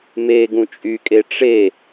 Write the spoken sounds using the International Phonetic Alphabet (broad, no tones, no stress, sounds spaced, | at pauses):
m e ɡ ũ t͡ʃʼ y kʼ e ʈ͡ʂ e